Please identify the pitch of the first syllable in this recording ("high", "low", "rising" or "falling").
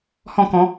falling